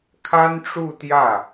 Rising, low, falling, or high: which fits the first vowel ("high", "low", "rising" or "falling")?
high